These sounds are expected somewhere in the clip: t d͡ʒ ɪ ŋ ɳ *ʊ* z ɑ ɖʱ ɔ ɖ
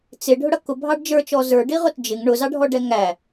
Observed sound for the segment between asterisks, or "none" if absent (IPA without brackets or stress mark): ʊ